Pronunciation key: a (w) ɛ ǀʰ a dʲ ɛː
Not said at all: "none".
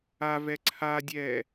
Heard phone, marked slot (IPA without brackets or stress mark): v